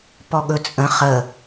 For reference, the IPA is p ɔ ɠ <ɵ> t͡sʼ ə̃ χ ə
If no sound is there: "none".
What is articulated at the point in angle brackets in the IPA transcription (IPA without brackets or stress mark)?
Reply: ɵ